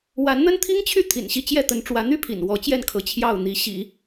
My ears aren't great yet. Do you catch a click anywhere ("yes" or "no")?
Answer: no